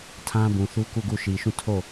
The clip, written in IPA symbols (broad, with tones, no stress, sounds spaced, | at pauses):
tʰ ã˦ b ũ˨ θ u˦ k u˦˨ ɡ u˦˨ ʃ i˨ ʃ ũ˦˨ tʰ o˦˨